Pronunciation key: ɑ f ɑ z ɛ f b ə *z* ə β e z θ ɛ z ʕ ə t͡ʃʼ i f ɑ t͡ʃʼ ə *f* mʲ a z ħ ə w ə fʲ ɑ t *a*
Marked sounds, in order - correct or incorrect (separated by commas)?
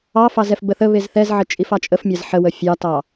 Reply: incorrect, correct, incorrect